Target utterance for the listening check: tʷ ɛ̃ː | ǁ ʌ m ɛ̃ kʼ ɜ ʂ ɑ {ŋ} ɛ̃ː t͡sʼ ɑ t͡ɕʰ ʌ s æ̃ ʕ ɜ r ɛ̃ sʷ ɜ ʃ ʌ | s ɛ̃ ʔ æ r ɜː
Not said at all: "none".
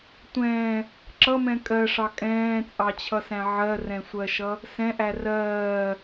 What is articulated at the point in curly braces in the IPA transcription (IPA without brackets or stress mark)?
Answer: kʼ